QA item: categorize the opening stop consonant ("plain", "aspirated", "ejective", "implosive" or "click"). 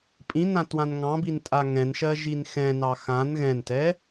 ejective